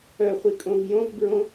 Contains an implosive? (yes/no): no